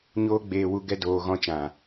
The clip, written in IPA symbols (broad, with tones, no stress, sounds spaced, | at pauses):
ɲ oː˦ ɡ͡b eː˧ w u˧ ɡ ɛ˧ d oː˨ ɣ ɔ̃˧ t͡ʃ ã˨